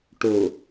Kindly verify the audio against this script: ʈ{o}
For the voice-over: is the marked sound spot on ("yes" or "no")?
yes